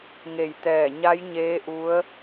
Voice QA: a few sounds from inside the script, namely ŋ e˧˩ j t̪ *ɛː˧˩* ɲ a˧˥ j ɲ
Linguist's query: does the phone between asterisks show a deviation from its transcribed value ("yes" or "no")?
no